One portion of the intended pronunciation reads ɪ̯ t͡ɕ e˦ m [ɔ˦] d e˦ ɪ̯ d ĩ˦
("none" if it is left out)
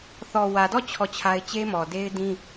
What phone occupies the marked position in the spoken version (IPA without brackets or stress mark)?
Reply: ɔ˨